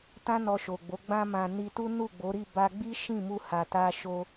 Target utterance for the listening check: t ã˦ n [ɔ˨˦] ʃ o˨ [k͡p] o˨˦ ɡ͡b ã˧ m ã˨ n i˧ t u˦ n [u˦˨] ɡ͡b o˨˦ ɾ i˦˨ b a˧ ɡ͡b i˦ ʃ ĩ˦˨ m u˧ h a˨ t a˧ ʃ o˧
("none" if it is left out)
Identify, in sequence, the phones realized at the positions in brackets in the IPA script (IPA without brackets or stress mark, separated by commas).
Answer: ɔ˧, ɡ͡b, u˦˨